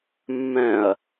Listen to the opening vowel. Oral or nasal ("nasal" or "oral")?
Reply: nasal